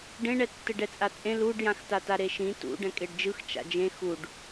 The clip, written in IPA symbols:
ɖ ẽ ɳ ɛ tː ɯ ɖ ɛ t͡sʼ a t͡sʼ ẽ l u ɖ j ã x t a t a ɾ e ʃ ĩ t ṵ ɖ ɛ̃ kʼ e ɖ d͡ʒ ɯ x t͡ʃ a̰ d͡ʒ ẽ x u ɖ

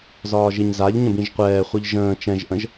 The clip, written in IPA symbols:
z ɒː ʒ i ɲ z a ʎ ɲ ə̃ b ĩ ʒ qʷ ɛː χʷ ɯ ʎ ʒ ə̃ː t͡ʃ ɛ̃ ʒ ʔ ə̃ ʒ

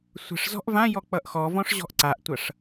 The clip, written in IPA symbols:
sʷ ə̤ ʂ z ɔ̤ ʔ v ã j ɔ k͡p ʌ ʔ x ɔ v ɔ̃ ʂ ʑ ɔ̤ ʔ ǀ a ʔ tʷ ʌ ʂ

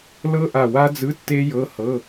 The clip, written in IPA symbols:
l ɤ˦˥ ʔ a˧˩ w a˦˥ d͡z ɯ˧˥˧ tː e˦˥ j ɤ˧˥˧ h ɤ˧˥˧

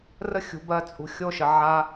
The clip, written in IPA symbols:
r ə˦ xʲ ṳ˨ b ɜ˧ t͡sʼ ṳ˨ xʲ o˦˨ ʃ ə˨ ʕ a˧

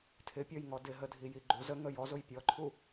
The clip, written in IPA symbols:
tʰ ɪ pʲ ɔ j ŋ ɔ d ɪ ɦ ə dʱ i j i ɡ͡ǃ u z ə ŋ ə j ɔ z ʊ j pʲ ɔ ǃʰ u

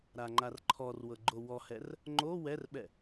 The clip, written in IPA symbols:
ɾ a ŋ͡ǃ a r ǃʰ ɔ r w ɤ ɡ͡ǃ o w ɔ h ɛ r | ŋ͡ǃ o w ɛ r ɓ ɛ

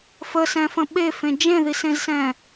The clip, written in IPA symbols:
f ə s ɛ̃ f ə̃ ɓ e f ẽ d͡ʒ ẽ ð i s ẽ z s ɛ̃

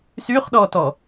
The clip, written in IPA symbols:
s y χ ɗ ɔ t ɔ

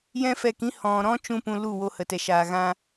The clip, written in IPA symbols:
j ɛ̃˦ f ɛ˧ k ĩ˦ h ɔ̃˨ ɾ ɔ̃˦ t͡ʃ ũ˦ p ũ˧ l u˦˨ w o˧ h ə˨ t ɛ˨ ʃ aː˨ ɣ ã˧

